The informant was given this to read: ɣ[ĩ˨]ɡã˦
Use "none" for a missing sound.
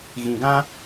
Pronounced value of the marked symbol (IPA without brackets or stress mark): ĩ˨